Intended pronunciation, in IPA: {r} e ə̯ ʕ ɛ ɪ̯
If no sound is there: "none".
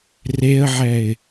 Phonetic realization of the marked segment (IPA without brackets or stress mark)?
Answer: r